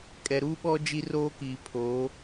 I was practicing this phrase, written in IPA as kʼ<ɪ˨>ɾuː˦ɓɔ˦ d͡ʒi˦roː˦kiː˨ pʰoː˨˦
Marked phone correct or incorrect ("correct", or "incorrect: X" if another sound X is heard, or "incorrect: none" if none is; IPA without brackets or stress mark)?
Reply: incorrect: ɛ˨